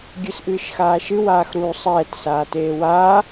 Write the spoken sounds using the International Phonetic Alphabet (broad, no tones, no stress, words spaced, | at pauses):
ɡʲɨsʔɨːʃxaːʃɨ waːxɾuːsˤɛːt saːteːwaː